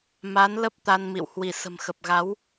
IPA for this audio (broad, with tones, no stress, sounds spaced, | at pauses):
m a˨˦ n l ə˦˥ p̚ t̪ a˧ n m ḭ˧˨ w h w i˧˩ s ə̤˨˩ m x ə˨˩ p̚ ɣ a˨˦ w